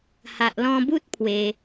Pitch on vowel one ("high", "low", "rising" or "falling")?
low